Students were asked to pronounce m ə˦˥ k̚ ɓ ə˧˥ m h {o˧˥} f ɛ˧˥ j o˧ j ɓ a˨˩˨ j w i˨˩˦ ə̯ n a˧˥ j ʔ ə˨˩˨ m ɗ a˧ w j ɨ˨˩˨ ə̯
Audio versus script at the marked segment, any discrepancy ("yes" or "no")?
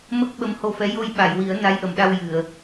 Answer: yes